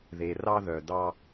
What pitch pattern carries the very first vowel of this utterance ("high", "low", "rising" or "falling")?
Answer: low